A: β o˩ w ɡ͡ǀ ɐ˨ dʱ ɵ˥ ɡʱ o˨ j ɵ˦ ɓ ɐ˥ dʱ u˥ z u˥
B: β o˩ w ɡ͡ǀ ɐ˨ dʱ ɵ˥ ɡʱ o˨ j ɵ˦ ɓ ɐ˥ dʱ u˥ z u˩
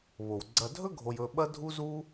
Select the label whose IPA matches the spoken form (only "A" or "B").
A